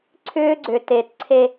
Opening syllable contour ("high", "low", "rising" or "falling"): high